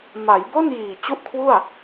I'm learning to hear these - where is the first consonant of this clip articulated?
lips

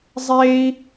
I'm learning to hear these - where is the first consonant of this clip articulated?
tongue tip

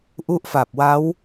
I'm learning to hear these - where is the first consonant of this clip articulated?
throat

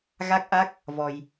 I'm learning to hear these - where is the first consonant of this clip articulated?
velum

